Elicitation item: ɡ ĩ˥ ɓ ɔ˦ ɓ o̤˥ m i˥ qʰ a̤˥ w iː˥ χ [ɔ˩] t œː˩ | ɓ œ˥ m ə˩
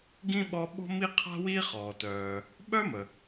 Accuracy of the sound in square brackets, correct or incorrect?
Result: incorrect